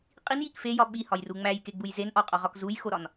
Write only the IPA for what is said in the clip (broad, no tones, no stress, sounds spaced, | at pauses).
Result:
qʼ i n j i k f e j ɒ ɓ i h ɒ j r u ŋ͡m æ j k e ɡ͡b u j z e n ʔ ɒ qʼ ɒ ʁ ɒ k z u j x o ɾ ɒ n